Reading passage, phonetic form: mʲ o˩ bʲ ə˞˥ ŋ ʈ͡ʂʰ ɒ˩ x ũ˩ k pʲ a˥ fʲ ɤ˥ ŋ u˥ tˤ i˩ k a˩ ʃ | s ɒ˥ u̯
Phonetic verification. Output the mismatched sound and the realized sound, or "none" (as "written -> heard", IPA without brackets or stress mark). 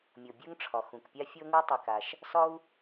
none